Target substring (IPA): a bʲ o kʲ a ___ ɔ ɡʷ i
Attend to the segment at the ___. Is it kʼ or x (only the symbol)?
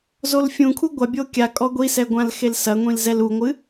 kʼ